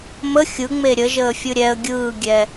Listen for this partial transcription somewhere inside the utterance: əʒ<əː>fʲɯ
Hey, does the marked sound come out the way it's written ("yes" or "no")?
yes